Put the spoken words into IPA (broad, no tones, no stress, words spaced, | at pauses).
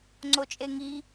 ŋ͡ǀot͡ʃʼeŋi